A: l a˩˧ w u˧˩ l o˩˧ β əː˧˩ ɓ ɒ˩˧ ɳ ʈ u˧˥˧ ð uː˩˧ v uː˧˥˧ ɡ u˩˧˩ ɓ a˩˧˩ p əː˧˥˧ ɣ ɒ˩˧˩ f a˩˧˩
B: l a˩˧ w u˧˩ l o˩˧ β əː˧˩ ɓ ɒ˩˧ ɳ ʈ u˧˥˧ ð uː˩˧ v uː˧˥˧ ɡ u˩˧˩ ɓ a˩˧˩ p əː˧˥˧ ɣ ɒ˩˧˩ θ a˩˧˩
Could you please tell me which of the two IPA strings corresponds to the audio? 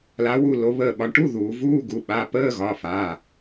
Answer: A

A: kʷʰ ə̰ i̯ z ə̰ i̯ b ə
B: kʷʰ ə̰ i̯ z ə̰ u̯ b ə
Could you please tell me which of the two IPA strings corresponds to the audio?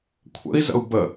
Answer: B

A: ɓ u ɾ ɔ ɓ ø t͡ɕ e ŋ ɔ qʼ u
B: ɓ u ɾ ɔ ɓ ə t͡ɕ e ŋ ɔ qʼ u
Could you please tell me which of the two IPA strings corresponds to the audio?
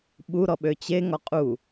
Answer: A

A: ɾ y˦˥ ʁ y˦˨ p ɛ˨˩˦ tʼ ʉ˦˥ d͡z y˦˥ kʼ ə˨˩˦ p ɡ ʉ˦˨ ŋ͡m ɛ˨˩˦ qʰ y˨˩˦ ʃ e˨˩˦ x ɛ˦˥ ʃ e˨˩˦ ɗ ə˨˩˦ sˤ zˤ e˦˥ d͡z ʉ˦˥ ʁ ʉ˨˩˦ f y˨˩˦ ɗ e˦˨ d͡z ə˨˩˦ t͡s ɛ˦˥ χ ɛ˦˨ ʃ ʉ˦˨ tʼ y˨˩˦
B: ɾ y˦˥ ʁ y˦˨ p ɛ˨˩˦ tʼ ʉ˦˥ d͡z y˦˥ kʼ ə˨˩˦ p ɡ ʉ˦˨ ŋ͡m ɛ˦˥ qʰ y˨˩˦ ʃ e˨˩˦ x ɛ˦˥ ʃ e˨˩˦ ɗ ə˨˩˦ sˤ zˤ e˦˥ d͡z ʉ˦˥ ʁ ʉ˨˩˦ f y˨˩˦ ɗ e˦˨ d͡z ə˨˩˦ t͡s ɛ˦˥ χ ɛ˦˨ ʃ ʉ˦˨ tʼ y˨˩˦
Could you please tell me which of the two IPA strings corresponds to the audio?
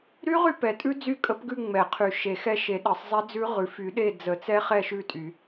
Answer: A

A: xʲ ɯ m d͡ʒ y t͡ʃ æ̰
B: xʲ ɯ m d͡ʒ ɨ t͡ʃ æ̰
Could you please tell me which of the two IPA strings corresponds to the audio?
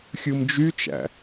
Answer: A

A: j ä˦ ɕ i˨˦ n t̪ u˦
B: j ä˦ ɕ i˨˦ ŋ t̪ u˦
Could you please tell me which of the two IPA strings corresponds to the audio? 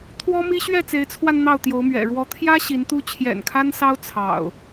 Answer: A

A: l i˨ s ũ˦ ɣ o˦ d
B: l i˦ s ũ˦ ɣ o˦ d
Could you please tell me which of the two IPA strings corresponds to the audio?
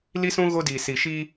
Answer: B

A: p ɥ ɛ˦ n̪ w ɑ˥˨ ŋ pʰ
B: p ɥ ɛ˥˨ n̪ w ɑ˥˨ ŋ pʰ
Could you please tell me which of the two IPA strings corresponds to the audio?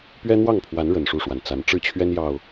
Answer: A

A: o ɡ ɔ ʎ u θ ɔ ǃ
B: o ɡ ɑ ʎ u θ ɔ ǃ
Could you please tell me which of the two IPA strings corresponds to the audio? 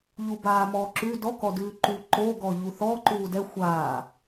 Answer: A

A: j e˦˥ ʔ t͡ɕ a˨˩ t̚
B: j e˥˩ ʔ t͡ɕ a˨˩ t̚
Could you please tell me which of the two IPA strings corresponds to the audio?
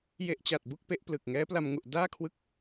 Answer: A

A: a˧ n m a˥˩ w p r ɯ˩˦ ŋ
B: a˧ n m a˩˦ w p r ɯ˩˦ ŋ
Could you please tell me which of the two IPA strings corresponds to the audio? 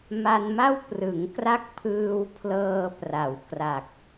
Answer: A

